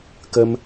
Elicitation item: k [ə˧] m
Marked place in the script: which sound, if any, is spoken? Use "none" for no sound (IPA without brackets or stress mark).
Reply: ə˧